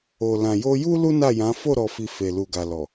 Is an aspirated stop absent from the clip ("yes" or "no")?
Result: yes